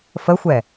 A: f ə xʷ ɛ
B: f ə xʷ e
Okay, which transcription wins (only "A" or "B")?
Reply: A